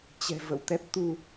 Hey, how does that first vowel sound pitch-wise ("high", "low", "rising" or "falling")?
low